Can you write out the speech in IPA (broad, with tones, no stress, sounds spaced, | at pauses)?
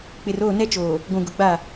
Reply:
k͡p ɪ˨ r oː˦˨ n ɛ˦ t͡ʃ oː˨ | ɡʷ ũ˨ ɡ ʊ˨ ɡ͡b a˦˨